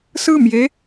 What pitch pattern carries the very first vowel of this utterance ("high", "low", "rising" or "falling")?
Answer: falling